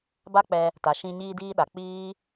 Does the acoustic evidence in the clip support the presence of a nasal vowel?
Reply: yes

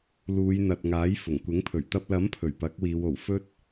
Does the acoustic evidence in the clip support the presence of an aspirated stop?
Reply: yes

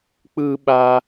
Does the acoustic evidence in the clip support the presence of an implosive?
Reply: yes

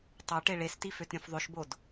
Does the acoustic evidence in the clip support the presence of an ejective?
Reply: no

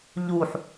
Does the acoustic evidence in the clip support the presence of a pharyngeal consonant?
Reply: yes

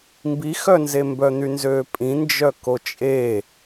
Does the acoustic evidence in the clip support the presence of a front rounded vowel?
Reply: yes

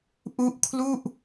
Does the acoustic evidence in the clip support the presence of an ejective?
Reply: no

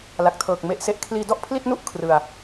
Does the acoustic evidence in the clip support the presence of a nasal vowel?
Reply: no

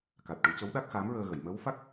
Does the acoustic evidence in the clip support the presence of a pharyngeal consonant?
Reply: no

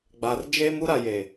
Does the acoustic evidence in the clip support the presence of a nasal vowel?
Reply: no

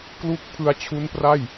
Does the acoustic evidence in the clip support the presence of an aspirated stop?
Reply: yes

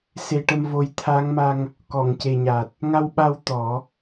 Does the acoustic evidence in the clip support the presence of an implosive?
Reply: yes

